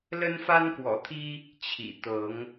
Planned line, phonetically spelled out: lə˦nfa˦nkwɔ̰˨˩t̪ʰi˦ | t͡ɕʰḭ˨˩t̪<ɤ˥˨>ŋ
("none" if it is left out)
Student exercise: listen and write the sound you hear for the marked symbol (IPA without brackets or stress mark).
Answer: ɤ˨˦